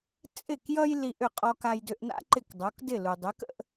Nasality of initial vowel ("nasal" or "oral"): oral